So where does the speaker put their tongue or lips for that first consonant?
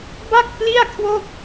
lips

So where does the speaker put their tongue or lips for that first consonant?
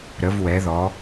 tongue tip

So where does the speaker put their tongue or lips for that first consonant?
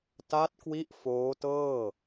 tongue tip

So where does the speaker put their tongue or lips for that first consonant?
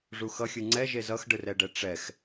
retroflex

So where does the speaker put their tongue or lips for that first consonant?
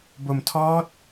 lips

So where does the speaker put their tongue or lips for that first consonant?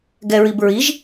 velum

